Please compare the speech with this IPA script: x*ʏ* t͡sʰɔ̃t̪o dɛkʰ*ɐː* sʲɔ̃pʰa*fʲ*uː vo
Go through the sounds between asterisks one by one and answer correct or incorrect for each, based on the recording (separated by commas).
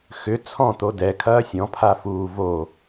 correct, correct, incorrect